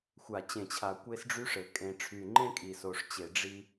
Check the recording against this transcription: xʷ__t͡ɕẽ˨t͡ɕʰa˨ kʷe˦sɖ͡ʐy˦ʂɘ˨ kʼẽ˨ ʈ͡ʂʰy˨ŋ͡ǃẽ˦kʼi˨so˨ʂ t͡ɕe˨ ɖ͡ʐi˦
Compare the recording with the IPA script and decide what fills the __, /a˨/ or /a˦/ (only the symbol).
a˨